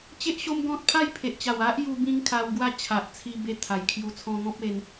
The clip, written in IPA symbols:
t͡ɕe˦ʔɕo˦m ɡɔ̃˦t̚ pʰa˥˧jpʰe˨ʔt͡ɕa˨˩w a˦ʔju˧ bĩ˦ŋkʰa˧wɡwa˥˧ t͡ɕʰa˨ʔt͡sʰi˧be˧ t̪ʰa˨˩jkʰju˧ t͡sʰɔ̃˧ŋɔ̃˦p̚e˧n

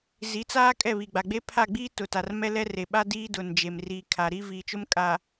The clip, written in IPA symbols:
zi˨˦t͡saː˦ kʼɛ˦˨βi˨ɡ͡ba˨ɡ͡be˦ pʰa˦˨ɡ͡biː˦tʊ˨ta˨r mɛ˦lɛ˦ re˨ɓa˦ diː˦dʊ˨n d͡ʒe˨mriː˨ kʰa˨ɾi˦ viː˨t͡ʃʊ˦mkʼa˨

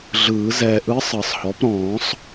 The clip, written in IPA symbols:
ɮɯː˨˩˦ zɛː˨ʔɯ˧˥ sˤɤ˨˩˦sˤhɔ˩˥p ɾɔ̃ː˨˩˦sˤ

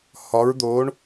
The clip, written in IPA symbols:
hɒ˩˧ɹd̪o˩˧ɳ

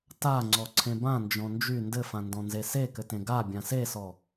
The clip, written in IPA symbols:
ta ŋ͡ǀɔǀʰẽbã nd͡ʒɔ̃nd͡ʒy ndɘfãndɔ̃ nzesekɘtẽ ɡa bʲãsesɔ

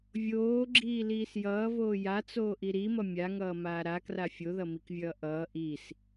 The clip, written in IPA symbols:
vʲoːɡ͡ǁiːliːs jʌːvoː jat͡soːʔi ɾimʌ mʲaŋʌːmaː ɾakra fʲoðʌmikvʲʌː ʔʌː ʔis

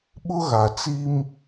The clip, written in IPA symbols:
ɓʊ˦ɣa˨t͡si˦m

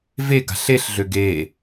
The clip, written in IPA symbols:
ve ɡa̤ɬeɬ ɮøɡe

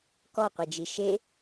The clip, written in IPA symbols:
kɔqʷed͡ʒi ʃe

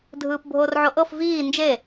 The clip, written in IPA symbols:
dʱɯːpbʱorʕoʔɤf viː nd͡ʒe

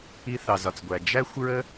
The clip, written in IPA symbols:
i˦θɑ˧zɒ˧t͡sɡʷæ˧ d͡ʒæ˦xʷɹə˦

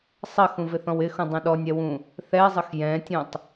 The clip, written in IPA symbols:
sˤɐxũvɪθɔ̃w ɪxũdˤũ ɗɔnʲɛwũ | θɛzˤəx jɛ̃tʲũtˤ

